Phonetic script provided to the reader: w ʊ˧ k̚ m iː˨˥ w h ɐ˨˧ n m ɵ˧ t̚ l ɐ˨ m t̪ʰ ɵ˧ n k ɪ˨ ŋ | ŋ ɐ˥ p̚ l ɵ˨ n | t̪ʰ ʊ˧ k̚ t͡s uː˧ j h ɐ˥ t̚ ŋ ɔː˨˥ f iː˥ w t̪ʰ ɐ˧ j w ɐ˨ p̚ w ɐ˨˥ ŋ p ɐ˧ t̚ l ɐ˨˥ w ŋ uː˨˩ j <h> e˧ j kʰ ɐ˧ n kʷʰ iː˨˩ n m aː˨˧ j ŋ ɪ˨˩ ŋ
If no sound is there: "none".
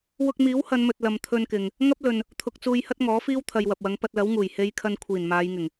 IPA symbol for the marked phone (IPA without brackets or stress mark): h